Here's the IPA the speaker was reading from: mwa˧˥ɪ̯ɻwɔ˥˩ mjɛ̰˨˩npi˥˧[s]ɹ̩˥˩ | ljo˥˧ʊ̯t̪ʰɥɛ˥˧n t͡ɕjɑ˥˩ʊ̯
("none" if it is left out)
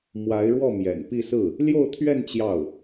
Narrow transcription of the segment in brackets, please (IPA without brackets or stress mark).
s